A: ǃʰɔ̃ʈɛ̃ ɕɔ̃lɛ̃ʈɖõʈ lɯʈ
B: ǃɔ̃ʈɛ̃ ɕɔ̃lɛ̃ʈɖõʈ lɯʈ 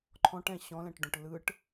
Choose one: A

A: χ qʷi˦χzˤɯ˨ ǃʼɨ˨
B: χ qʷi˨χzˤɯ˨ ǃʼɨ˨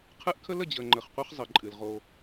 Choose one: A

